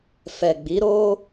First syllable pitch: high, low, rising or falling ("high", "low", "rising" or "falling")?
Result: low